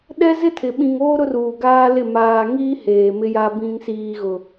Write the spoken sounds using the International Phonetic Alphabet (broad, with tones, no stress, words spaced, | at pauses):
ɗɛ˦zɪ˦tʰɪ˨ ɓĩ˨ŋoː˦ ɾʊ˦ruː˨ɡaː˦lɪ˦˨ maː˨ŋiː˦ heː˨mɪ˦ja˦ bĩ˨ŋsiː˨ɣʊ˨